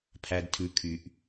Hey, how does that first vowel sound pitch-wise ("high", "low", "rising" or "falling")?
low